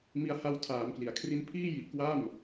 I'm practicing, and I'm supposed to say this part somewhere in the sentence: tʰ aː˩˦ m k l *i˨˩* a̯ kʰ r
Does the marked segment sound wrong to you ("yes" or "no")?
yes